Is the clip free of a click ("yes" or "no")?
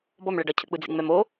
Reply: yes